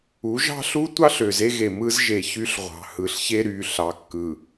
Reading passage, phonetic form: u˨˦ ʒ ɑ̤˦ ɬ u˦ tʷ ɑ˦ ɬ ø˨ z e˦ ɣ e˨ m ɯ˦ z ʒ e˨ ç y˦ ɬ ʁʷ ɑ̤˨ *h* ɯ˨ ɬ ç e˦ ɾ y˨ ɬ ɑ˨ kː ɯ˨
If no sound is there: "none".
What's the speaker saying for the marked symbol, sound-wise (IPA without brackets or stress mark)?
h